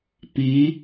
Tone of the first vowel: rising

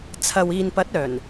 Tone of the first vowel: low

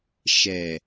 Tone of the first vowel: low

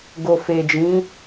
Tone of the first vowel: low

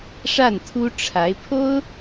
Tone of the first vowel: falling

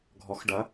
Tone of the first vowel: rising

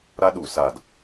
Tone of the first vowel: high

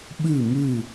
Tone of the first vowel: falling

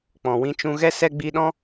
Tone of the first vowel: low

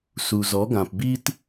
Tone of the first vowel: low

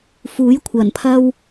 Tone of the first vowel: rising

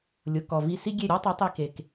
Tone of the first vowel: low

